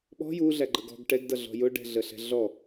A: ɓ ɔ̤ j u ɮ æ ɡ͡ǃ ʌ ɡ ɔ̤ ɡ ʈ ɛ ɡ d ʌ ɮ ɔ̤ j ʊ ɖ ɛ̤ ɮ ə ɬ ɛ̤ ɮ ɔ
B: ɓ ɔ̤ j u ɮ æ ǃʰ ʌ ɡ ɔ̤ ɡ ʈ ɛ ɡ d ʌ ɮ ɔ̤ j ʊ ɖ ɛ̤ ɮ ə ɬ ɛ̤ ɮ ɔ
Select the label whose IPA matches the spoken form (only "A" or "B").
A